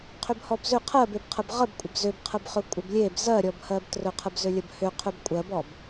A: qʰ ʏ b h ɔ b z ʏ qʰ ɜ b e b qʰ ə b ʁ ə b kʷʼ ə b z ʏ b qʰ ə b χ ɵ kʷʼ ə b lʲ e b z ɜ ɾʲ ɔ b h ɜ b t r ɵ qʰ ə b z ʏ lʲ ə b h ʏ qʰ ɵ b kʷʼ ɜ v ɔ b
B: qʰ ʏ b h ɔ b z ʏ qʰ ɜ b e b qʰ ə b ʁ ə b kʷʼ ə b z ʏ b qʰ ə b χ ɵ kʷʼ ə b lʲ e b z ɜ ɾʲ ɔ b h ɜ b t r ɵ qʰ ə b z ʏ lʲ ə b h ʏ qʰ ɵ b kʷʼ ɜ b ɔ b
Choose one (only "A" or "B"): B